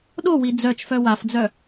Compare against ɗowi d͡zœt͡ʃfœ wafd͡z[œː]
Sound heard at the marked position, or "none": œ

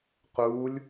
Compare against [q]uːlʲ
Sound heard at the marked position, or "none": q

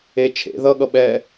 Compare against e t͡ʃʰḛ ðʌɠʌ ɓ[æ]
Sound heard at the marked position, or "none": ɛ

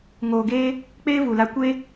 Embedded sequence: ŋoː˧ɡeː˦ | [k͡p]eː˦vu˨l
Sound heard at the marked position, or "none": k͡p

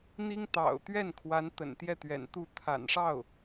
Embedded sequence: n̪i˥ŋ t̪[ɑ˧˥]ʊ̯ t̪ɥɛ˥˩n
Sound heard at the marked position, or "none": ɑ̰˨˩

